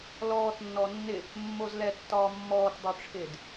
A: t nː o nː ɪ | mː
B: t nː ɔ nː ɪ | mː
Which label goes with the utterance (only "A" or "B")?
B